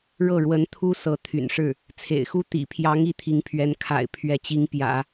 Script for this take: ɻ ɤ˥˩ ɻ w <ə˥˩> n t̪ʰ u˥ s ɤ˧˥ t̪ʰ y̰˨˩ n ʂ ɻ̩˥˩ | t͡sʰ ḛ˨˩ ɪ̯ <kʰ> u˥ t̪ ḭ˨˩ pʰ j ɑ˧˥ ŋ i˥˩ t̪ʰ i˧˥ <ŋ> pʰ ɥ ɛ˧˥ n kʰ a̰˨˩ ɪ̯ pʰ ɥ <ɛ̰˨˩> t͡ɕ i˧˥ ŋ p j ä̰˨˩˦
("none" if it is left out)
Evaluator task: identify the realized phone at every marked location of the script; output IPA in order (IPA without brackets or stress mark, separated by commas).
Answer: ə˧˥, x, ŋ, ɛ˧˥